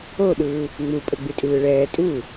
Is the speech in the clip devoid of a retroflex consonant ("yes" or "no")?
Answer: no